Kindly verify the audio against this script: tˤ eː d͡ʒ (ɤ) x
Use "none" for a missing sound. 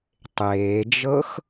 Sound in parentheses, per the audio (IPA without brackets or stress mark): ɤ